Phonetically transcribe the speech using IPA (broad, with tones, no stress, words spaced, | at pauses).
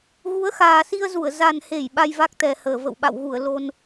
ɣu˨˦ə̯xaː˨˩si˧ə̯zu˧˩ə̯ za˨˩nhe˧˩j ɓa˧jva˦˥k̚ t̪ɛ˨˩həː˧˩ və̰˧˨wɓa̰˧˨wɣu˧˩ə̯ lo˧n